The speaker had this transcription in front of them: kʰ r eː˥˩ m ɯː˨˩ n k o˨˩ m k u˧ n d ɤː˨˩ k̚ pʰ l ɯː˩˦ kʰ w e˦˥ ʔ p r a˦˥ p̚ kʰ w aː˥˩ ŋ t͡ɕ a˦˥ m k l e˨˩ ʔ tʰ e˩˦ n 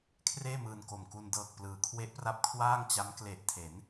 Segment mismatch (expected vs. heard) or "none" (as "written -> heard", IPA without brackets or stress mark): pʰ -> p